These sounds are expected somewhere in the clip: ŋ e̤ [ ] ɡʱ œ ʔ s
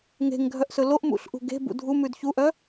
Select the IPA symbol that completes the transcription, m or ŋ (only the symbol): ŋ